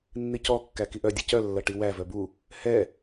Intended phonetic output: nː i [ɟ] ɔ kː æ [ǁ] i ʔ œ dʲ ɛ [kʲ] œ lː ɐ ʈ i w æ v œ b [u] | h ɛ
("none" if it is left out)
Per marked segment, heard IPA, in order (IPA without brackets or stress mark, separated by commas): c, k, c, u